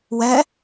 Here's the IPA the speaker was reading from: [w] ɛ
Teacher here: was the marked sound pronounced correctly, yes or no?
yes